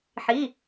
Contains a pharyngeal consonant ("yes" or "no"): yes